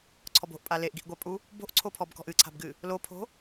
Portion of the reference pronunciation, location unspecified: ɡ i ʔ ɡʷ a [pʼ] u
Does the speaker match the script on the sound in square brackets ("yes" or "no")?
yes